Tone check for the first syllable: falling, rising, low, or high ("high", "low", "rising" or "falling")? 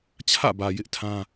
falling